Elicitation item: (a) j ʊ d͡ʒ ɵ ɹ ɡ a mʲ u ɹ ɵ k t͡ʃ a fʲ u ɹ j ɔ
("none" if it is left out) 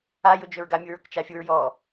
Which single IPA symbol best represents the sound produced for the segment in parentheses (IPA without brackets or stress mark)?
a